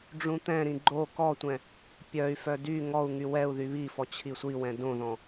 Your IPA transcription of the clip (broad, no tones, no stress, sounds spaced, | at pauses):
ɖ͡ʐ ũ t̪ ɛ̃ ɾ ĩ ɡ͡ǃ o k ɔ tʷ ɛ̃ | pʲ œ y̯ f œ d y ŋ ɔ u̯ ŋ y w ɛ u̯ ð y β i f ɔ t͡ɕʰ i sʷ i w ɛ̃ d õ ð ɔ̃